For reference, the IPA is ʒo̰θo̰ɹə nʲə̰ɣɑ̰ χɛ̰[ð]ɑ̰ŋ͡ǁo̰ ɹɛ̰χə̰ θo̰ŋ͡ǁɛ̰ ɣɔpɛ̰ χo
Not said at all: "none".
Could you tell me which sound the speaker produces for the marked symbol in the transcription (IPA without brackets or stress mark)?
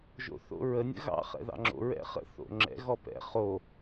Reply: ð